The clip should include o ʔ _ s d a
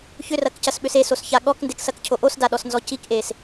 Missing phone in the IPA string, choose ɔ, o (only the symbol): o